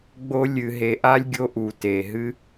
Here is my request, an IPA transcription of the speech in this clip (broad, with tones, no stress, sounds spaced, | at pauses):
ɡ͡b o˦ lʲ ɨ˨ ɦ e˨ ʔ a˦ lʲ ɡʲ o˦ ʔ u˨ t e˨ ɦ ɨ˦